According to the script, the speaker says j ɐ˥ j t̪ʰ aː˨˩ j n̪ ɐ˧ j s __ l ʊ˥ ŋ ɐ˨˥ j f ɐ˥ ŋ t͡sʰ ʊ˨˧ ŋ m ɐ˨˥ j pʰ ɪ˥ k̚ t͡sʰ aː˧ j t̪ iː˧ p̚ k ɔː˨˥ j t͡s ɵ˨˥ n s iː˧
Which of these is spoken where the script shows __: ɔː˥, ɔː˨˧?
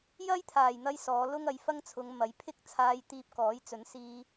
ɔː˨˧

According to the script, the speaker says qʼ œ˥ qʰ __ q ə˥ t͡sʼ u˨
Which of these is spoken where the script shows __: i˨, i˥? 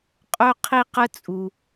i˥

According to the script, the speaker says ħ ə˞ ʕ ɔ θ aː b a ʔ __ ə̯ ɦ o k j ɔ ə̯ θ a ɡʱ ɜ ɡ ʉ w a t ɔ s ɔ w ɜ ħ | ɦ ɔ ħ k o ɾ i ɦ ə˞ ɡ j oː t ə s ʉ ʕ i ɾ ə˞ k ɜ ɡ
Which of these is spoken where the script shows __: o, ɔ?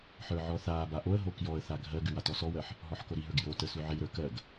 o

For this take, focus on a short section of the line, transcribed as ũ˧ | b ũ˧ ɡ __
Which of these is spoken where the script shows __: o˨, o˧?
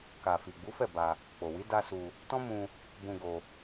o˧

